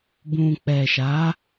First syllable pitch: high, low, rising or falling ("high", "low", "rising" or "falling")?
low